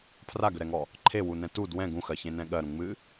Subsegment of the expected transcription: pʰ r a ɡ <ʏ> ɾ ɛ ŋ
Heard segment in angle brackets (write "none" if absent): ʏ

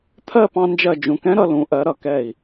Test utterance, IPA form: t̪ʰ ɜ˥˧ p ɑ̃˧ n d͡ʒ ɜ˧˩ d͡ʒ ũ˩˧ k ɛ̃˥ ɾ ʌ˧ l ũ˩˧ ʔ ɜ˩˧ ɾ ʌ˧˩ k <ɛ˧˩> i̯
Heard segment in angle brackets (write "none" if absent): ɛ˧˩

